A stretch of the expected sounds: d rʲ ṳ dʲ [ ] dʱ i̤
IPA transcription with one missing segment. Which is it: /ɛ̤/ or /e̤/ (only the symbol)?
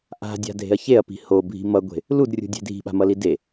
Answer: e̤